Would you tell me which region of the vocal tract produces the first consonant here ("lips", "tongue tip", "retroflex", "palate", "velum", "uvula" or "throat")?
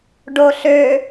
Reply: retroflex